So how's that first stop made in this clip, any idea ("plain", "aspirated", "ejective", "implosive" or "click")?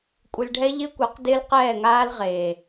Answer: ejective